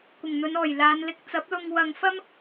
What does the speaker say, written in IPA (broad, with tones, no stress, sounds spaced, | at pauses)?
kʷ ɪ˨˩ ŋ n̪ ɵ˨˧ n ɔː˨˩ j l aː˨˧ n l ɪ˧ k̚ t͡s ɐ˨˥ p̚ l ʊ˧ ŋ w ɐ˧ ŋ f ɐ˥ m